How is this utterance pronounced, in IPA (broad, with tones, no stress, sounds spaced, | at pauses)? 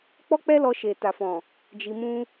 k͡p ɔ˦ k͡p ɛ˦ l ɔ˧ ʃ e˨ t a˨ f ɔ̃˨ | d͡ʒ i˧ m ũ˦